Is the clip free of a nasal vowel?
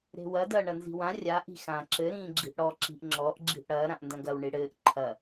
no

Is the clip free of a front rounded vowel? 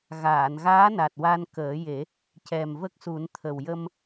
yes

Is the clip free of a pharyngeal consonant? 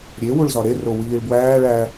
yes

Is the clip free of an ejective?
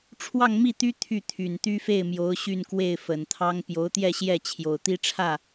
yes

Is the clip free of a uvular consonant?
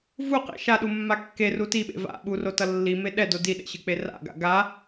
no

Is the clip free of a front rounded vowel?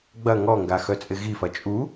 no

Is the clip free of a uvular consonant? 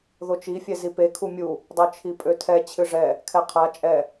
no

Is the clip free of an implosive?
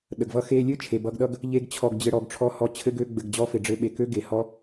no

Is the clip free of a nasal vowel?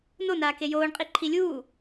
yes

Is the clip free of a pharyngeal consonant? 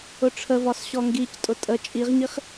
yes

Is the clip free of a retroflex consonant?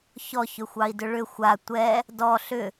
no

